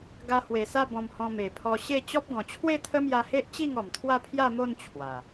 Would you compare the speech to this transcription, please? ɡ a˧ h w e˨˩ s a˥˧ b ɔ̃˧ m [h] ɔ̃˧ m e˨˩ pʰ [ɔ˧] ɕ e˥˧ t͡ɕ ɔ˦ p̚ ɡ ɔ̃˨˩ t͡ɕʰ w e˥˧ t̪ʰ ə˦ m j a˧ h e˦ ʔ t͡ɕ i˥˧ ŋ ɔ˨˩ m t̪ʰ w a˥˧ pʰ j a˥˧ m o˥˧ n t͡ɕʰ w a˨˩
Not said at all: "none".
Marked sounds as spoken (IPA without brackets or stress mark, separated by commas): h, ɔ˧